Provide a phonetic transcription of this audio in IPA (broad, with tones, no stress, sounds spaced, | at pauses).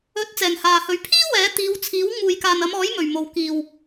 ɵ˨˥ t̚ t͡s ɛː˨ ŋ h aː˨ h ɵ˨˧ ɥ pʰ iː˥ w ɛː˨˥ t̪ iː˨˧ w t͡sʰ iː˨˥ w ŋ uː˨ j k aː˨ n ɐ˨˧ m ɔː˨˥ j m ɵ˨˩ ɥ m o˨˩ w k iː˨˩ w